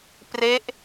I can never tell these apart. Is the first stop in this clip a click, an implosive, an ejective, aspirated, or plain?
plain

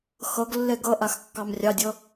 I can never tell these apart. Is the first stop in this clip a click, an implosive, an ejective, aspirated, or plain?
plain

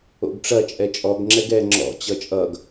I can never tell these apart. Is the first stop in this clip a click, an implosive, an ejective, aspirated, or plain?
plain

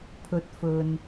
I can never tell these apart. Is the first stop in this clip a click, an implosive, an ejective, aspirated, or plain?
aspirated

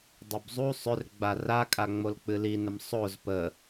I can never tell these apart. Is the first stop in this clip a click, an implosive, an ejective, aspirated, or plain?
plain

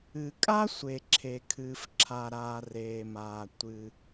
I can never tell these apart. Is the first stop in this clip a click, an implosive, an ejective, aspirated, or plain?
ejective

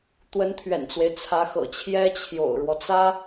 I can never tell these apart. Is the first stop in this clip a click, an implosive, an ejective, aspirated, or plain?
plain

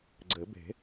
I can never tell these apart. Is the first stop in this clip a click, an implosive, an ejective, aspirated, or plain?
click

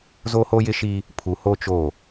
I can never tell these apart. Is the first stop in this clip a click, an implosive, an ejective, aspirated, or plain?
aspirated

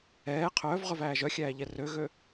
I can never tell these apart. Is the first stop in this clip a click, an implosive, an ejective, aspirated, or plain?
aspirated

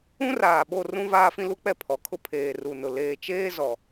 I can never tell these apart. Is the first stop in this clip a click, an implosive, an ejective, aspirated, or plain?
implosive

